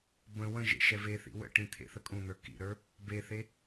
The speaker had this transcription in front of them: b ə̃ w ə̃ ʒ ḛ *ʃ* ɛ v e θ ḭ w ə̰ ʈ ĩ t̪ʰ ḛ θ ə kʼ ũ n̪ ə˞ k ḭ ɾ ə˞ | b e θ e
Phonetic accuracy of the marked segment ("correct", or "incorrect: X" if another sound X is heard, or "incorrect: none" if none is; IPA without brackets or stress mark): correct